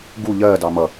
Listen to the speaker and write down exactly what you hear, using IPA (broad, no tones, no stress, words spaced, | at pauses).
ɡu ʎɜ dɑmʌ